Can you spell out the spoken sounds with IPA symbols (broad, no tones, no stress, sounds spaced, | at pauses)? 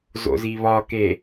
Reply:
z o̰ z i β ɒ k e